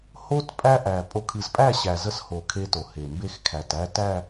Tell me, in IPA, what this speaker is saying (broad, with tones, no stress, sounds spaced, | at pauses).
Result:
h o˦ t pʼ æ˦ ʔ æ˨ pʼ o˨ kʰ ɨ˨ z pʼ æ˦˨ ɕ æ˨ z ə˦ s h o˨ kʰ e˦ t o˨ h e˨ m b e˦ x kʰ æ˨ t æ˦ t æ˦˨